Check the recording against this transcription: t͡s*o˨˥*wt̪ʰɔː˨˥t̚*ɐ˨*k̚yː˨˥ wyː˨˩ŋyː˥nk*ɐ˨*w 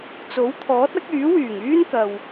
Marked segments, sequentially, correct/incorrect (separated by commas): correct, incorrect, correct